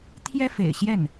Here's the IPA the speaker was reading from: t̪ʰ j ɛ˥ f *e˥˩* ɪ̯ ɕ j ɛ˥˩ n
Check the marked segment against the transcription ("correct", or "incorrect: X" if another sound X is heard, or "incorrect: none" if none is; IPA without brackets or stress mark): incorrect: ḛ˨˩